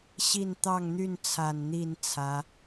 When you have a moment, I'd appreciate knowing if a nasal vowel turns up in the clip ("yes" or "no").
no